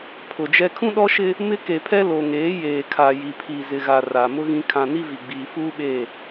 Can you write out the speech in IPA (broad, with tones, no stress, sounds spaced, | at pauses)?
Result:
pʰ ʊ˨ d͡ʒ ɛ˦ kʰ ũ˦ ɗ ɔ˦ ʃ ɪ˦ | m ɪ˦ k e˨ pʰ ɛ˦ l o˨ ŋ eː˨˦ j eː˨ kʰ a˨ j i˨ pʰ i˨ z ɪ˨ ɣ a˨ r aː˨ m ʊ˦ ɣ ĩ˦ kʰ ã˦ n i˦ v i˨ ɡ͡b iː˨ f uː˦ ɓ e˦˨